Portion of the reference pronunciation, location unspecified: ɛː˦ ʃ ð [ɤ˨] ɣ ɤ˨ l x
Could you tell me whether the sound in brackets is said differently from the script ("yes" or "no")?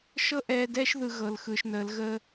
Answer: yes